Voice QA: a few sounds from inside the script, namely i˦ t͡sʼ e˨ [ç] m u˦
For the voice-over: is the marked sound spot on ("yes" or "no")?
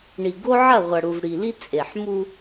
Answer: no